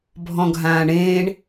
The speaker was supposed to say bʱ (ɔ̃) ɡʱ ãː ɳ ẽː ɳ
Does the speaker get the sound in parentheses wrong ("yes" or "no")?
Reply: no